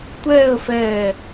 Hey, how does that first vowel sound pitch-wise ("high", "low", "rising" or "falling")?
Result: falling